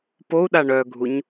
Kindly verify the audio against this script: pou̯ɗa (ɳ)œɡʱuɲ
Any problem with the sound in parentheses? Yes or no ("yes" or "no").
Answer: no